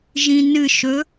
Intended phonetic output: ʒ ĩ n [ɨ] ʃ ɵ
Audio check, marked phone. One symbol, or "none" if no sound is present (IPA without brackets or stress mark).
ɨ